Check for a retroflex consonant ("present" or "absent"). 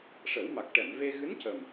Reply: present